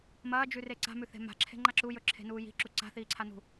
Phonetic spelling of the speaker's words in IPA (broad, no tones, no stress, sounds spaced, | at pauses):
m ɐː d͡ʒ ʉ r e ǀ a̤ m ʉ θ e̤ m a̤ ǁʰ e̤ ŋ͡ǃ a ǁ u j ɵ ǁʰ e̤ n uː j i̤ ǁ u ǀ a̤ θ iː ǀʰ a n ṳ